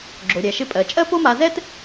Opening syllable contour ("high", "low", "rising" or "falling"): low